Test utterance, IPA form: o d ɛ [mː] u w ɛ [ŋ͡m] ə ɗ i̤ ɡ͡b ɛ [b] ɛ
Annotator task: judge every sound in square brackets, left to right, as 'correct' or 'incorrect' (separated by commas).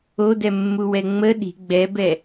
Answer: correct, correct, correct